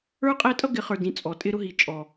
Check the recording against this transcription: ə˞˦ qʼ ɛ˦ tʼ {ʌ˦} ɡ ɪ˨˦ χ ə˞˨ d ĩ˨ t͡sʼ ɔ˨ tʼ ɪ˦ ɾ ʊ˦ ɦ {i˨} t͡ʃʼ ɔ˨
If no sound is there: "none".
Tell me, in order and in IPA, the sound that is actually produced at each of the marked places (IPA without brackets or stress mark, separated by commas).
ʌ˦, i˨